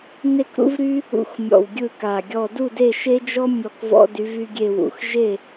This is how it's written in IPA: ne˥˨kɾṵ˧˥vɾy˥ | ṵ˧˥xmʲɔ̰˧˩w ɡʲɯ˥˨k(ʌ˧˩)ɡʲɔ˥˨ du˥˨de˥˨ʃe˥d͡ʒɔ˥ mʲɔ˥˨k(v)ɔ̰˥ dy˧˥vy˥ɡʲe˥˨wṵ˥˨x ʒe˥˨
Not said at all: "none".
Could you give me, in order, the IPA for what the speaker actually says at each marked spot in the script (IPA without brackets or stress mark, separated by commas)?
a˧˩, v